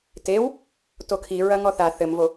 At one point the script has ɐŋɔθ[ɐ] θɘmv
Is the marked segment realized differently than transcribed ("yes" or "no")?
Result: yes